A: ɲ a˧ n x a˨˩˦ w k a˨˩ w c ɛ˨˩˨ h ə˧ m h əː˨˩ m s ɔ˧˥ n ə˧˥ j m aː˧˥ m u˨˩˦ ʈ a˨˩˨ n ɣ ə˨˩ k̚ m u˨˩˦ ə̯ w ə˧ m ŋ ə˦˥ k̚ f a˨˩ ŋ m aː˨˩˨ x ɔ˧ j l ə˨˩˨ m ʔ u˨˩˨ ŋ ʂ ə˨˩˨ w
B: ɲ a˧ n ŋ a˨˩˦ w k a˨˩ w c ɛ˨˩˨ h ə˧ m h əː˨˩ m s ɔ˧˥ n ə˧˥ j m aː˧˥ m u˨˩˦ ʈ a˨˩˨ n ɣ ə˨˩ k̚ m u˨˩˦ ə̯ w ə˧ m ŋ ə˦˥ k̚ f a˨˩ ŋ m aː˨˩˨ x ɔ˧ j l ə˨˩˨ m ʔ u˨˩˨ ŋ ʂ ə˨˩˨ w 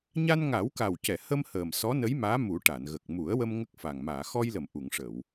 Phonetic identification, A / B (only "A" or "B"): B